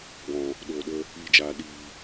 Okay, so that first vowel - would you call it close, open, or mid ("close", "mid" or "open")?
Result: mid